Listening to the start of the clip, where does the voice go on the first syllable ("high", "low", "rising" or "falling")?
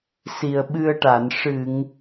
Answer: low